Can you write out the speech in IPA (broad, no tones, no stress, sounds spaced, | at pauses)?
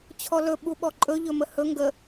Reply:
t͡ɕʰ ɔ l ɵ ɓ u ɓ ɔ ǃʼ ɵ ʎ ɵ m ə h ɵ ŋ ɡ ə